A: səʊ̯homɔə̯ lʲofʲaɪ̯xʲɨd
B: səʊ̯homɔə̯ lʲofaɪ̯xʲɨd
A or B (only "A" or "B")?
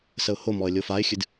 B